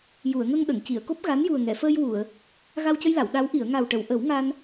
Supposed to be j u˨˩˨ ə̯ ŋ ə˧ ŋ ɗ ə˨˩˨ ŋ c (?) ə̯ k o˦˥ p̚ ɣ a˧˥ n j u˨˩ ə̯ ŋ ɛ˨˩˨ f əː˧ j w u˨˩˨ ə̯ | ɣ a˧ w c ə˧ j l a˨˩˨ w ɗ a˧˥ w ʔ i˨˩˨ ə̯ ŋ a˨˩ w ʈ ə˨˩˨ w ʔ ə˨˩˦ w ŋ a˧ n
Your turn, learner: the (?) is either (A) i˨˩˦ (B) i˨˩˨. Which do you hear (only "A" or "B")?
B